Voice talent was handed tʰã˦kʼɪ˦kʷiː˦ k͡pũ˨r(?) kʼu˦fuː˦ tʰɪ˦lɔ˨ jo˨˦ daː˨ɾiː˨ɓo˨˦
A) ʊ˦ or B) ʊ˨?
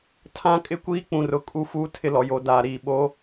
B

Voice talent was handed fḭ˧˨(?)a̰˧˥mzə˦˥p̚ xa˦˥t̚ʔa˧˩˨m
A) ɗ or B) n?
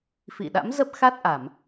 A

